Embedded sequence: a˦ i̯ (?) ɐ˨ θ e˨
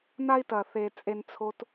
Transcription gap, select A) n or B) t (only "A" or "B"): B